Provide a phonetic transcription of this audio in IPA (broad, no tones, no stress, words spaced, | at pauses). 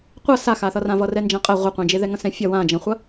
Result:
qʷʌ saxaθʌrã vʌrɛnd͡ʒãqʼæ ʁʷɐqʷɛ̃d͡ʒeðɛ ŋɐ̃sɛ̃fʲɐ wãd͡ʒɐ̃χʷɐ